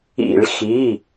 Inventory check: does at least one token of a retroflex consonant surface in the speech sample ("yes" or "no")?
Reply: yes